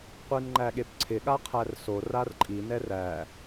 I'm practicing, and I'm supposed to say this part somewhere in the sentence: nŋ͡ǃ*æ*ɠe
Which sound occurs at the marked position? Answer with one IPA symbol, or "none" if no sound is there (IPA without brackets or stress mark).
æ